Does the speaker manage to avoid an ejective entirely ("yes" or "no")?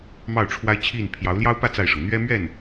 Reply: yes